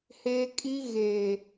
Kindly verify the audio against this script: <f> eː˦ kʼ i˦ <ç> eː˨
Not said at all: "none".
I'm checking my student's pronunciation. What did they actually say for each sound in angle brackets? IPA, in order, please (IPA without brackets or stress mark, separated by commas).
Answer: h, ɣ